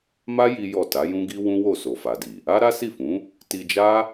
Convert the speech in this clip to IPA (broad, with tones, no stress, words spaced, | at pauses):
ma˦ ji˦jɔ˦˨ ta˨˦jũ˦ɡi˦ wũ˦wo˦˨ so˨fa˨di˨ | a˦ɾa˦si˦˨fũ˨˦ | ti˧d͡ʒa˦